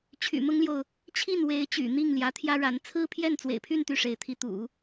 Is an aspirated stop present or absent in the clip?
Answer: present